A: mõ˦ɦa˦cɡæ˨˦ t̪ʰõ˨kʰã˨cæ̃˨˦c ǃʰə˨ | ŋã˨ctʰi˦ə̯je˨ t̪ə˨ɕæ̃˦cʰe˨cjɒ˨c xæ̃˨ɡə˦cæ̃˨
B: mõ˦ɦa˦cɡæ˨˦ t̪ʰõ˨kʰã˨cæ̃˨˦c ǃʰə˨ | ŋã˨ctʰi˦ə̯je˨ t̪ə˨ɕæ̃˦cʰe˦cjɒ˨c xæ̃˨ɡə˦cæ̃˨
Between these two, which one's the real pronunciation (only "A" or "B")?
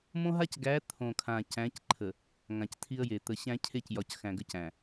B